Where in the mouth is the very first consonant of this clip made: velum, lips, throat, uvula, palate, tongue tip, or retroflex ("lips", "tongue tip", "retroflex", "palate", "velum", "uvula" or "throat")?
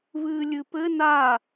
lips